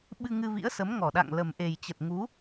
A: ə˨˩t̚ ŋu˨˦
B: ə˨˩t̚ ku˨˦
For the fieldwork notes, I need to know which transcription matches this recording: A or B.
A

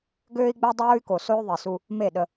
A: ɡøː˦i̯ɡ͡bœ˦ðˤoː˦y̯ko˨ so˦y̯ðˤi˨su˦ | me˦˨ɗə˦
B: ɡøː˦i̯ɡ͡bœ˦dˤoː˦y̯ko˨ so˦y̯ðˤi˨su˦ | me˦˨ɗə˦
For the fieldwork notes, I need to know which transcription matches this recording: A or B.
B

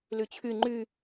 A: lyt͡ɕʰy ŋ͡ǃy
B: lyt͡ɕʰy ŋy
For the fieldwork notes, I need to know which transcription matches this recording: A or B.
A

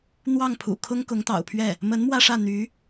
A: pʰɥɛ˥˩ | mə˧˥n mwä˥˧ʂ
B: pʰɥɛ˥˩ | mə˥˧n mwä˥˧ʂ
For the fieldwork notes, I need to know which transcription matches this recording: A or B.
A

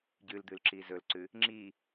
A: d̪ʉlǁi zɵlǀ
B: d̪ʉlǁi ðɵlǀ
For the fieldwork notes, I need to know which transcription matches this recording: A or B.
A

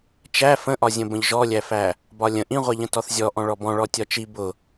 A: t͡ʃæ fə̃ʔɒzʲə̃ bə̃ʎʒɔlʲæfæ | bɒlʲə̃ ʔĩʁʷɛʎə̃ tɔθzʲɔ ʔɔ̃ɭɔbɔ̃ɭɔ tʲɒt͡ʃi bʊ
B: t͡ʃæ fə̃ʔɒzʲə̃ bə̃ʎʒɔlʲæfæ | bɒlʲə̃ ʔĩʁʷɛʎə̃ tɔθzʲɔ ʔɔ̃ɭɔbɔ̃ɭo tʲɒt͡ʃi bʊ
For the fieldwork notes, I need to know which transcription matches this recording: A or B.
A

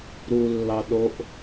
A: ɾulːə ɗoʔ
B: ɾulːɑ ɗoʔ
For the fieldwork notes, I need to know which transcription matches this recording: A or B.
B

